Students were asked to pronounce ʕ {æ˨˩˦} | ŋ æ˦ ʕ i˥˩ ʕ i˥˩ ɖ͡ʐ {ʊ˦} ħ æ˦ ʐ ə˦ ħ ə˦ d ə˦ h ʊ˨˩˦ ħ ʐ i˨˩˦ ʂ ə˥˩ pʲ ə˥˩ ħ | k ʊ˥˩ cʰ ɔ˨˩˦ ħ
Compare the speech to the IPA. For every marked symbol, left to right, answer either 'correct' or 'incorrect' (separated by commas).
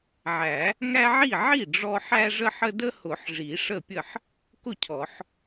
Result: correct, incorrect